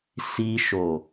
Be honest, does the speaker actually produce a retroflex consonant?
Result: no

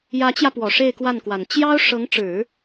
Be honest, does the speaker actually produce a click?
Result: no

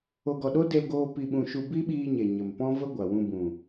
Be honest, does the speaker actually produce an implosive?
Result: yes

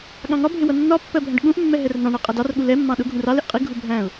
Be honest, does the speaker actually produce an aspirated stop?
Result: no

